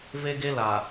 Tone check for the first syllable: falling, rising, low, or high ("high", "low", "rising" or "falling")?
high